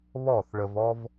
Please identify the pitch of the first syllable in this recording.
falling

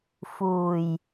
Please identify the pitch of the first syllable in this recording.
low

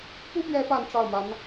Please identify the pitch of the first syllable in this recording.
high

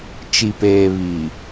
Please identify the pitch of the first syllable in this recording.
low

